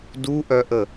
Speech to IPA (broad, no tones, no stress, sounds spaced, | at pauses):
d u ʔ œ ʔ ə